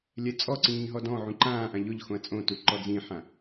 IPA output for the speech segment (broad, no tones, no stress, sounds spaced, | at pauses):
lʲ ɛ t͡sʼ ɔ ǀ ĩː ɦ ɔ d ɔ̃ ʕ ũ ǃ ãː ʔ ã ʎ ʊ ʎ x õ ɐ̯ t͡sʼ õ t u ǃ ɔ d͡z ĩ ħ ã